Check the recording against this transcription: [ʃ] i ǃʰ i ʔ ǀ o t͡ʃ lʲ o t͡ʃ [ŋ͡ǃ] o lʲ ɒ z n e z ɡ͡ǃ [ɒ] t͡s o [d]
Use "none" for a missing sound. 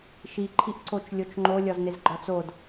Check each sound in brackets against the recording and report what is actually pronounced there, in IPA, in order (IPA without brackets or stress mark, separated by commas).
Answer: ʃ, ŋ͡ǃ, ɒ, d